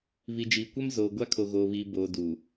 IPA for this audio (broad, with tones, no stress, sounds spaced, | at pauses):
β i˨ d͡ʒ iː˨ kʷ ɛ˦ m z oː˨ ɡʷ a˦ kʰ o˨ ɣ oː˨ β iː˨ b oː˨ d u˨